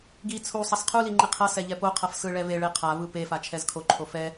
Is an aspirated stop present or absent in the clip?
present